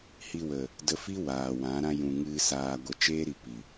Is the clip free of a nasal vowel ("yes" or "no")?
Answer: no